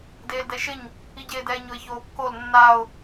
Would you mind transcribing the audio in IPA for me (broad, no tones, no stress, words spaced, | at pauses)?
deːldɛʃɪɲ | iɟeːdɛːɲʊɪ̯ çoːkːol nːaʊ̯